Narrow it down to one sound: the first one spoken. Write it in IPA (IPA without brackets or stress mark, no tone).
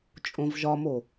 t͡ʃʼ